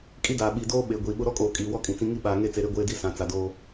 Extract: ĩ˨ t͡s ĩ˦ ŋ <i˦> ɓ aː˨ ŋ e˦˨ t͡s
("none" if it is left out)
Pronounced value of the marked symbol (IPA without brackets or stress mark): i˦